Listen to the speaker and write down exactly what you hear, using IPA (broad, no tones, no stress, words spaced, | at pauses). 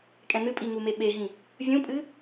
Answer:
kʼɛ̃nɨ pʼiŋume ɓeɦĩ | vʲũpʼɨ